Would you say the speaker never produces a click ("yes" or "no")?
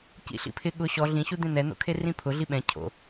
yes